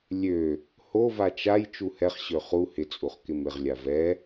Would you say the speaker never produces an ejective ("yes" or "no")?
no